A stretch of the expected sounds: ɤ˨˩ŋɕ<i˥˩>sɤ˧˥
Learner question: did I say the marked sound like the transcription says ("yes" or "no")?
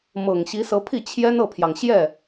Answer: no